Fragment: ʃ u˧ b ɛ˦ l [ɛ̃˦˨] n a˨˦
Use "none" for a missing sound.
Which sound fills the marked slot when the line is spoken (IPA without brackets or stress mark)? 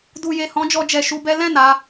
ɛ̃˦˨